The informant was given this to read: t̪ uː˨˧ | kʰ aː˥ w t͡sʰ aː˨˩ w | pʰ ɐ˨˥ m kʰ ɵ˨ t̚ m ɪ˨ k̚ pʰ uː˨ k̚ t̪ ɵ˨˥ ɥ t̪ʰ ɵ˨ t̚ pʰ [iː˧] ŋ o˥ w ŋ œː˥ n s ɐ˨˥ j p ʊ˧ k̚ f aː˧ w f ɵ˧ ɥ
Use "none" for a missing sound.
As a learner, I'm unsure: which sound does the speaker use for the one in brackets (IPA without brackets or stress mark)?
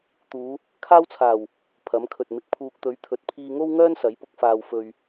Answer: iː˧